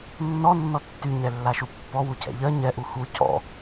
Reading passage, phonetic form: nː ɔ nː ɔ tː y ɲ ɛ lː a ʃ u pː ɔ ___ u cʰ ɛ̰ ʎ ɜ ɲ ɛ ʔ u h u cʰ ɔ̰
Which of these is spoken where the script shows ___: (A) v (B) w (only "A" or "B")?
B